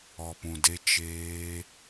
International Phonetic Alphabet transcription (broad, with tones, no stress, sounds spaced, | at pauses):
ɔ˨ p ũ˨ d e˧ t͡ʃ eː˧